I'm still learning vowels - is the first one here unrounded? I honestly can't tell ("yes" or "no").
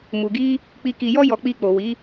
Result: no